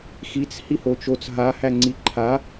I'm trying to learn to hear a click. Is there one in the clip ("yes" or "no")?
yes